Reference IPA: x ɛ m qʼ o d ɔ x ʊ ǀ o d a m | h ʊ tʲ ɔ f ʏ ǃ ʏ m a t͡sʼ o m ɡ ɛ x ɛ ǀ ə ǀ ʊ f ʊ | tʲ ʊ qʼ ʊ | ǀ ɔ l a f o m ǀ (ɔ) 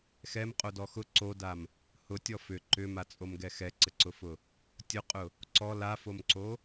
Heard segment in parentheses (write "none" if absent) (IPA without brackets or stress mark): o